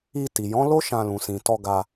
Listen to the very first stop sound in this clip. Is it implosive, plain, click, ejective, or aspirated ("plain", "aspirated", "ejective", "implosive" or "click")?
plain